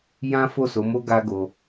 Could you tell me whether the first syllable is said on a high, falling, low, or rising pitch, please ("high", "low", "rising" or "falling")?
high